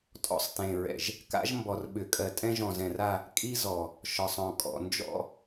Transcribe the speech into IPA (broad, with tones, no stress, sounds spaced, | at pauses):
tʼ ɔ̰˦ sˤ t ẽ˨ ɹ ɛ̰˨ ʒ | k a̰˦ ʒ m b ɔ˨ r ɓ ʏ˨ kʼ ɜ˨ tʼ ɛ̃˦ ʒ ɔ̃˨ z ɛ̃˨ r a˦˨ | kʼ i˦ z ɔ˨ | ʃ ɒ˨ sˤ ɔ̃˨ kʼ ɔ̰˨ n d͡ʒ ɔ̰˦